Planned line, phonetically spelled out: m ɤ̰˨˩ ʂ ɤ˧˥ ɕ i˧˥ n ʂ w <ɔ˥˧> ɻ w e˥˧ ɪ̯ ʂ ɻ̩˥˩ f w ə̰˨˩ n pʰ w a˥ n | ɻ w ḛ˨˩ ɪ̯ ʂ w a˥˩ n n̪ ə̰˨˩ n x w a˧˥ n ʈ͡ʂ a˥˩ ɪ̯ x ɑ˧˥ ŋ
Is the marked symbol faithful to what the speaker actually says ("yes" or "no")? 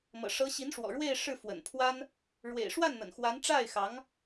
no